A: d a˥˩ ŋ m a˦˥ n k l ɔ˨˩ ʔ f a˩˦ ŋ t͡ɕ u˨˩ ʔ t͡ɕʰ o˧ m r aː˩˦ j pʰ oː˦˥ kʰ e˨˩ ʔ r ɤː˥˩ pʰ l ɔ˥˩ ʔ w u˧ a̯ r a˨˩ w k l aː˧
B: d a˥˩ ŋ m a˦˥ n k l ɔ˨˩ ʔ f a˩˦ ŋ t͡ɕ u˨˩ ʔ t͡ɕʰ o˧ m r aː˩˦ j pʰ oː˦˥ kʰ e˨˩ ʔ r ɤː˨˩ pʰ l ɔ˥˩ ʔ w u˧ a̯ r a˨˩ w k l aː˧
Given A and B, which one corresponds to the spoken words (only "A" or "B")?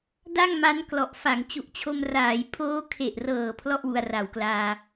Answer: B